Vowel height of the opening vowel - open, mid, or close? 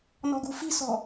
mid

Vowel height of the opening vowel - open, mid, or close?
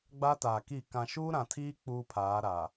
open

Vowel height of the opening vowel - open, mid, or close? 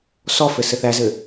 mid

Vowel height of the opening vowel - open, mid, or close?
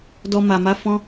mid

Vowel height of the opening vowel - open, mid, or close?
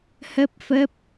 mid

